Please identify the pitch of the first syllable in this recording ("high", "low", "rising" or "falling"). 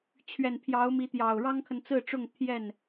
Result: low